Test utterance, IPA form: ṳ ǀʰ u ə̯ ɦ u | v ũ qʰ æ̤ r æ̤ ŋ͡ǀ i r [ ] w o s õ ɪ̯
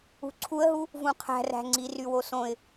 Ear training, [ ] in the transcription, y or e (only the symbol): y